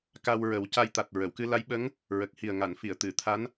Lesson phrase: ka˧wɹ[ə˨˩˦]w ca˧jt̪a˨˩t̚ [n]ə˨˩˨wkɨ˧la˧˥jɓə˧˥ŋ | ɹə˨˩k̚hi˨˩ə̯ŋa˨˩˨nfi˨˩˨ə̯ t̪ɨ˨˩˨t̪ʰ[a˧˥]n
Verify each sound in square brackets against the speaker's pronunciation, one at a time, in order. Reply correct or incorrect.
correct, incorrect: ɹ, correct

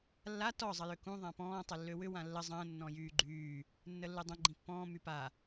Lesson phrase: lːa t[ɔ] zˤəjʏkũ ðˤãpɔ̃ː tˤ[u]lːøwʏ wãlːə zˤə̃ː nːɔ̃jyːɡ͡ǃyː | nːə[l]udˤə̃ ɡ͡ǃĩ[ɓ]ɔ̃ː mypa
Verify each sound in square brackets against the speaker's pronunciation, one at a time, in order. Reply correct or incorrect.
correct, incorrect: ʏ, incorrect: lː, incorrect: pː

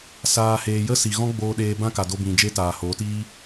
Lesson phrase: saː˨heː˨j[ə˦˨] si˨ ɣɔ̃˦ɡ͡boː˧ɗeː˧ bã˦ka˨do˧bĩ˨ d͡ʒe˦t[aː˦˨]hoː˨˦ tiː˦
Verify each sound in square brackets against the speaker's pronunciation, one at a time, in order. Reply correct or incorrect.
incorrect: ə˦, incorrect: aː˨

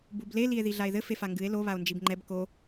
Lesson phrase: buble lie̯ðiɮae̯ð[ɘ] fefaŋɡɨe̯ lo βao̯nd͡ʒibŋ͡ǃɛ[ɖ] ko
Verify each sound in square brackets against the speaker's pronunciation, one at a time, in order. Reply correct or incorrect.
correct, incorrect: b

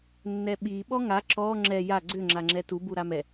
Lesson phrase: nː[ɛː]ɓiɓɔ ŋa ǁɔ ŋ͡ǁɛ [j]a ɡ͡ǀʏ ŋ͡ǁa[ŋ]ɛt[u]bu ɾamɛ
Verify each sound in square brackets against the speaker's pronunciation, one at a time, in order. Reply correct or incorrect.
incorrect: ɛ, correct, incorrect: ŋ͡ǁ, correct

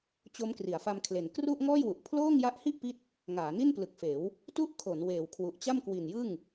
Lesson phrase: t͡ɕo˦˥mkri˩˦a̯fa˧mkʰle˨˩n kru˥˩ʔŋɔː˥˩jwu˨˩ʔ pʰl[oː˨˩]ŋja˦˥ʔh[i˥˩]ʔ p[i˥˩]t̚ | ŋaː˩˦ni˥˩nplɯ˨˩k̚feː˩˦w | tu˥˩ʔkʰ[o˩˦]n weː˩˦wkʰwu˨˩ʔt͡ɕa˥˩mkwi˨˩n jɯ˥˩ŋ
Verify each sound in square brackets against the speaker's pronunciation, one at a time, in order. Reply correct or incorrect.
incorrect: oː˥˩, correct, correct, correct

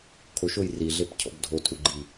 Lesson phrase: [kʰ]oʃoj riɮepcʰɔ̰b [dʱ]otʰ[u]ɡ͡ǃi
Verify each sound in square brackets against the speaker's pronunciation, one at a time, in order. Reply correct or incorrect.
correct, correct, correct

